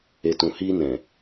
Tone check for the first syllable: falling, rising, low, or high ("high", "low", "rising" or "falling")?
low